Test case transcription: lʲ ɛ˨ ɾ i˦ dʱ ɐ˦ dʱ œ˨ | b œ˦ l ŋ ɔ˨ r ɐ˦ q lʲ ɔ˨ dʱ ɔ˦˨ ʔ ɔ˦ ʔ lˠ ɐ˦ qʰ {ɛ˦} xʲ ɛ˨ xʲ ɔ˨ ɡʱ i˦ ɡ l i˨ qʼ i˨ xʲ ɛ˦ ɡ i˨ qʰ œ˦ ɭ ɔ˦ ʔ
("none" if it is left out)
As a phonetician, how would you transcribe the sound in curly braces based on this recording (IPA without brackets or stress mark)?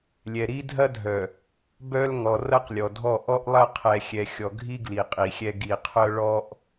ɛ˨